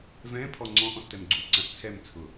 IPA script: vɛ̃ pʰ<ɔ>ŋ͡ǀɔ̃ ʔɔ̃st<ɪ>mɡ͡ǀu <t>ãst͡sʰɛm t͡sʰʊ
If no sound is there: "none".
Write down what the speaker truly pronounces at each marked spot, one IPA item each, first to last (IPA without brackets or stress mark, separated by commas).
ɔ, ɛ, ǀ